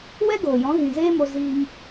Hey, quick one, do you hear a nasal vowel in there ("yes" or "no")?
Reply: yes